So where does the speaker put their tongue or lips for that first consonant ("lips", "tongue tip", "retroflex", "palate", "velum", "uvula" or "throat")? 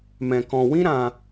lips